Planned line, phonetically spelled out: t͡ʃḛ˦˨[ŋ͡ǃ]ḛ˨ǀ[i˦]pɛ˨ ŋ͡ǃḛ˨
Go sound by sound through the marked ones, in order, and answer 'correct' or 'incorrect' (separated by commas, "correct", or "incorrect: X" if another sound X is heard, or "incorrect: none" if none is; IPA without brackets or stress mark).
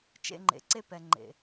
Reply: correct, incorrect: e˦